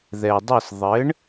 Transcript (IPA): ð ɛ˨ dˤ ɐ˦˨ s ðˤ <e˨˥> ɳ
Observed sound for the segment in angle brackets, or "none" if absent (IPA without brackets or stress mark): ɘ˨˥